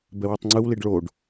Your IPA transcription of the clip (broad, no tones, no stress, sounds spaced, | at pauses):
b ɛ w u tˤ ŋ͡ǀ ɯ w l i ɖ ɭ o ɖ